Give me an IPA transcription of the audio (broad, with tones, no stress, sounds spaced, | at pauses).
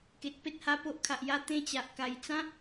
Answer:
k e˨ t̚ p e˦ t̚ h a˧ p o˦ ʔ kʰ a˨ ʔ j a˦ t̪ ẽ˧ t͡ɕ a˨ ʔ k a˨˩ j t͡s ã˦